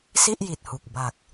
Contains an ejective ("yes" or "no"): no